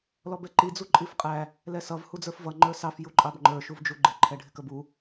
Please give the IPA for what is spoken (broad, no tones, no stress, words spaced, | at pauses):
lɔbɛǃi d͡zuǃʼifqʼæ | lɛsʌv hud͡zə˞fvʌ ŋ͡ǃə˞sɑf juǃʼɑbŋ͡ǃə˞ ʃuvd͡ʒuɡ͡ǃɪ ǃʰɛɖʱɪkəbu